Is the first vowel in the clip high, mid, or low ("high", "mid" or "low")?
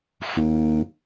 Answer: high